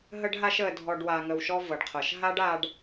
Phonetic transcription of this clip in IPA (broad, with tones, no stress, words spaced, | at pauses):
ɦə˦ɖɦa˦ʃə˨ dʱɔ˨ɖ wa˨ŋə˨wʃɔ˦ vɤ˩ɖqʰɤ˩ʃɦa˥ɖ a˦ɖ